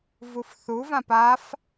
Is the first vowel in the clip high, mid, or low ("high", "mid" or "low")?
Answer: high